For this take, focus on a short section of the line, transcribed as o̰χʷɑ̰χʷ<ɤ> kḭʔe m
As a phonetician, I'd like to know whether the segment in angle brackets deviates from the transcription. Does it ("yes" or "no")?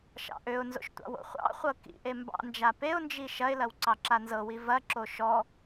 no